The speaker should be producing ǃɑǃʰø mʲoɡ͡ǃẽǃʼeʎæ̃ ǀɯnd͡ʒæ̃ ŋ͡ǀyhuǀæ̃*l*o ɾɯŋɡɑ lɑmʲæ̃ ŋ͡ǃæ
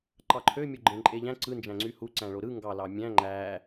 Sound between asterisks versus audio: incorrect: ɭ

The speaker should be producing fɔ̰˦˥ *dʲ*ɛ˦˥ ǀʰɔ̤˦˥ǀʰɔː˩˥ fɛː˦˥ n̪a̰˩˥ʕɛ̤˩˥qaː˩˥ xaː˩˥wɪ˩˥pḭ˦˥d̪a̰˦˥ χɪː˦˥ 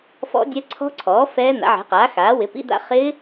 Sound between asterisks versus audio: correct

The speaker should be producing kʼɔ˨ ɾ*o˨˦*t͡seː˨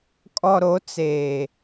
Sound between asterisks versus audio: correct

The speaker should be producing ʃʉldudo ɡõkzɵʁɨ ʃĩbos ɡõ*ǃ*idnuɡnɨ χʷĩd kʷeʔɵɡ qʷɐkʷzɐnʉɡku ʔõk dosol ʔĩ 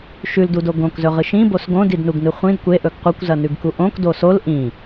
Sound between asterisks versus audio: incorrect: d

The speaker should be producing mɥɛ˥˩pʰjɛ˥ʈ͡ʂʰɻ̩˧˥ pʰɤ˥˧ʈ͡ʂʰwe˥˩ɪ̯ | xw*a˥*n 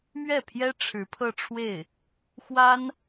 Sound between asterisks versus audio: correct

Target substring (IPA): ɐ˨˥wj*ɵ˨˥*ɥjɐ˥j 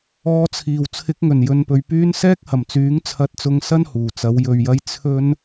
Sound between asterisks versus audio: incorrect: ɵ˧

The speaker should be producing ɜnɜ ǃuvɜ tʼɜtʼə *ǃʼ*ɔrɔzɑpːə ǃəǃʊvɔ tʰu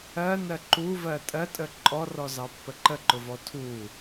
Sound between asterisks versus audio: correct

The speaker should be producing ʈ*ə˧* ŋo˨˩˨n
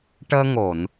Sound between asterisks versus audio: incorrect: əː˧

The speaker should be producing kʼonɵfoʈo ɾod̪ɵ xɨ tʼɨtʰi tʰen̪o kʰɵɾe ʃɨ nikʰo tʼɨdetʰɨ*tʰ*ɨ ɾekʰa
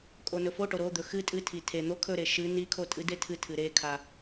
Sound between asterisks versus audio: correct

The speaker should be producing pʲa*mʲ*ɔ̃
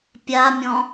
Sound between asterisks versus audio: correct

